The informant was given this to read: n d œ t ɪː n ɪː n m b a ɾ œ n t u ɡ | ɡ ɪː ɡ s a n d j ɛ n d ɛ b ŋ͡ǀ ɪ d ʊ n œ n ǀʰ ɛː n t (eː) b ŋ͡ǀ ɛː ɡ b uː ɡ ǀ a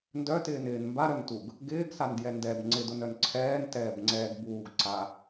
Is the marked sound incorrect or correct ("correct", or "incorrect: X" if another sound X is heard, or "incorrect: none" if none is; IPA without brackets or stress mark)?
incorrect: ɛː